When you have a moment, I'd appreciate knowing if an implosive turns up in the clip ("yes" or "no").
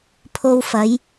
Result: no